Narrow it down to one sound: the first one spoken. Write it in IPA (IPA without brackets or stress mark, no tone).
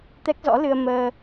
t̪